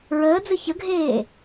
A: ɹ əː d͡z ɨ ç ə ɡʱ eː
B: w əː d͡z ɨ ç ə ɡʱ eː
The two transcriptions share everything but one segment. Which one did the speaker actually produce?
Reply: A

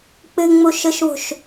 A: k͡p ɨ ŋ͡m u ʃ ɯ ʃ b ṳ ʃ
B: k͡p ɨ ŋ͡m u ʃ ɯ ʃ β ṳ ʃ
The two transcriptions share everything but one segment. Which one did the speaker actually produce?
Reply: B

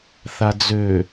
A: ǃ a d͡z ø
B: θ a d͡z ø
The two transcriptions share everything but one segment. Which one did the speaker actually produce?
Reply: B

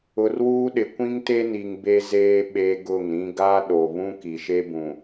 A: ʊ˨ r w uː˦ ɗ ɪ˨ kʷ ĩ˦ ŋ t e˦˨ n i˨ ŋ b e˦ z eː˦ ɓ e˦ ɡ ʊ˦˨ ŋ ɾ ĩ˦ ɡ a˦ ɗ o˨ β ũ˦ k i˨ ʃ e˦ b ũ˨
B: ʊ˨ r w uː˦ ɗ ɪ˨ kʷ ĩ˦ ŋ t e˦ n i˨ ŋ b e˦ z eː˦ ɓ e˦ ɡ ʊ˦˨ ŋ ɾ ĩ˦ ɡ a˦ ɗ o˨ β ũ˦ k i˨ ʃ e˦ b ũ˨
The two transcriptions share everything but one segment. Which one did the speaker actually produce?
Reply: B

